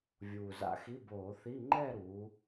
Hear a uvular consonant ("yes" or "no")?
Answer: no